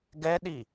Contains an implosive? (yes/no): yes